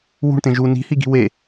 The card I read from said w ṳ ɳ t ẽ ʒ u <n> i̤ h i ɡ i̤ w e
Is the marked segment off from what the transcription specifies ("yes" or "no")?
no